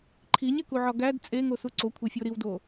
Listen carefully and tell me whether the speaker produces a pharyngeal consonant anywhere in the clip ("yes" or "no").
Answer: yes